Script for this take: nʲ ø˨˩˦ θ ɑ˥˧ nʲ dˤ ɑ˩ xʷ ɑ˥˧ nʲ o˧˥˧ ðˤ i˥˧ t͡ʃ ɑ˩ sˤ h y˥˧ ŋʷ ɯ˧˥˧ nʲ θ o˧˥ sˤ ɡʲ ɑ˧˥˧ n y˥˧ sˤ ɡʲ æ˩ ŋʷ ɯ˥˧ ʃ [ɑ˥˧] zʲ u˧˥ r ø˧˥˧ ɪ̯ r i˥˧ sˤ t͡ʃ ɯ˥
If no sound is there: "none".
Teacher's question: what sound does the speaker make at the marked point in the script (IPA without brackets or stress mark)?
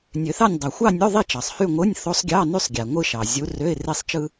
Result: ɑ˩